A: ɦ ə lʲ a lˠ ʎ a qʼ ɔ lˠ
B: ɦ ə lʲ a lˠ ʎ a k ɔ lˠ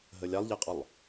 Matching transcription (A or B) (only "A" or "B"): A